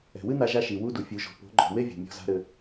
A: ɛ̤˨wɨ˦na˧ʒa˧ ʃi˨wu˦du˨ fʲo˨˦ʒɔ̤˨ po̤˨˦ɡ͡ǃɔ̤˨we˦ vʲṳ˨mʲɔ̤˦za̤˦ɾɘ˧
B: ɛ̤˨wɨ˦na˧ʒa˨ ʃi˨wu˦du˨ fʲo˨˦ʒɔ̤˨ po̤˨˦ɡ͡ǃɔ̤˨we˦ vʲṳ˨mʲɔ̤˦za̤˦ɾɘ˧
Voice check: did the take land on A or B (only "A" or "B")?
A